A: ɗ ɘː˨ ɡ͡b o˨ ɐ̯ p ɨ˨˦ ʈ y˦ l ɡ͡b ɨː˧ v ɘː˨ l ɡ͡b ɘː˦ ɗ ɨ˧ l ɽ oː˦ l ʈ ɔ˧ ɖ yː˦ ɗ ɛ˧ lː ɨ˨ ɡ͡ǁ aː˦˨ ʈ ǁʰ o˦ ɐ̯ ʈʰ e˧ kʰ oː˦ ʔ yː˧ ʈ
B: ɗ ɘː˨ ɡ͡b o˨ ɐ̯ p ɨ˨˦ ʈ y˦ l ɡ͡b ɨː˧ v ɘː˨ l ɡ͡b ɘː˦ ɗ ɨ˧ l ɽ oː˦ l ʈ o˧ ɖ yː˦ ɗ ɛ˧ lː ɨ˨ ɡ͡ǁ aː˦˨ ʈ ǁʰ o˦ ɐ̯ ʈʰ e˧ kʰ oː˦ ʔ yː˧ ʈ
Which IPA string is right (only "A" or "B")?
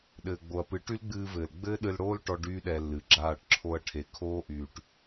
A